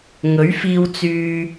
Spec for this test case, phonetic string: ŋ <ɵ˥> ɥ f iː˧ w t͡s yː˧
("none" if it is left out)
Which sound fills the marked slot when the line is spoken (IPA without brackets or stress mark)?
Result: ɵ˨˥